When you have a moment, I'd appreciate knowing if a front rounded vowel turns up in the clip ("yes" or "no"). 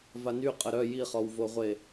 yes